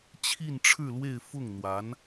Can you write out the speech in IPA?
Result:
t͡ɕʰ i˥˧ n ʈ͡ʂʰ ɻ̩˥˧ l w e˥˧ ɪ̯ f ʊ˥˩ ŋ n̪ w a˧˥ n

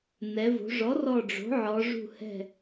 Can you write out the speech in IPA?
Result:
n ɛ˩˧ v o̤˩˧ ʐ ɔ˩˥ r ɔ˧˩ ɖ͡ʐ o̤˩˥ ʕ ɔ˩˧ ʐ ṳ˧˩ h ɛ̤˧˩

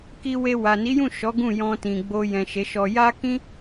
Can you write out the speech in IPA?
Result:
k i˧ w e˧ w a˨ n i˨˦ j ũ˦˨ ʃ ɔ˨˦ ɡ ũ˦˨ j ɔ̃˧ t ĩ˨ ɡ͡b o˧ j ɛ̃˨ ʃ e˨˦ ʃ ɔ˧ j a˦ k ĩ˦

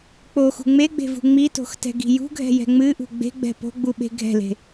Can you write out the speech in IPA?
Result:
k͡p o x ṳ ŋ͡m e ɡ͡b e̤ v ṳ ŋ͡m i t o̤ x t ɛ̤ ɡ i̤ j ṳ ɡʱ ɛ̤ j ɛ̤ ŋ͡m ɨ ʔ ṳ ɡ͡b e̤ ɡ͡b ɛ̤ p o̤ ɡ͡b u ɓ e̤ ɡʱ ɛ̤ l e̤

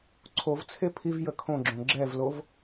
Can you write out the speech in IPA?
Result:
ǀʰ o v t͡sʰ e pʰ i v j ə kʰ õ ɡ͡ǁ õ ɡ͡ǁ ɛ v l o v

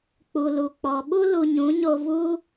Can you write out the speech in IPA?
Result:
k͡p u˨ l u˨ k͡p ɔ˨ ɓ u˦ l u˧ ɲ ũ˨˦ ɲ o˧ v u˦

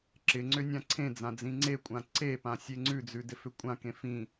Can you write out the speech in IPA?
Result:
ǁ ɪ ŋ͡ǀ ʏ nʲ ã ǀʰ ẽ d͡z ã d͡z ĩ ŋ͡ǀ e kʷʼ ã ǀ e p ã sʲ e ŋ͡ǀ ʉ d͡z ʉ d ɪ f ʏ kʷʼ ã k ẽ f ĩ

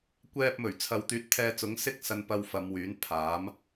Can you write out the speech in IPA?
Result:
kʷ ɛː˨ p̚ m ɵ˨˩ ɥ t͡sʰ ɐ˨˧ w t̪ yː˨˥ t̚ t̪ʰ ɛː˧ t͡s ʊ˨˥ ŋ s ɪ˥ k̚ s ɐ˧ n p ɐ˧ w f ɐ˨˧ m w yː˨˥ n pʰ aː˨˥ m

